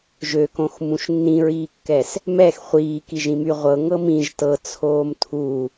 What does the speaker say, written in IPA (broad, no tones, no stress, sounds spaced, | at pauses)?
ʒ ø k õ x m ũ ʃ nː ĩ ɹ iː kː ɛ s | m ɛ x χʷ iː k i ʒ ĩ m y ʁʷ ɤ ŋ ɤ m ĩ ʒ t ɤ t͡sʰ oː m tʰ u